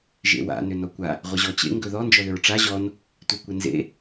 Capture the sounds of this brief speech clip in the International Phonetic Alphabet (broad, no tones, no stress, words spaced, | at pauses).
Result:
ʒḛwa̰ nʏnɔkʷa | ʁʷɪʑɔt͡ɕḛ ŋɡɵðɔ nd͡ʒɔðʏɹʈ͡ʂa ʑɔn | tʷekʷɪnzḛ